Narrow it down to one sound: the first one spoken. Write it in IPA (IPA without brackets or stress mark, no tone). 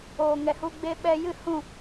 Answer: oː